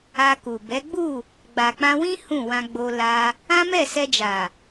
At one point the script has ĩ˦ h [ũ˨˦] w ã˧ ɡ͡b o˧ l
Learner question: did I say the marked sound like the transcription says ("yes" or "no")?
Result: no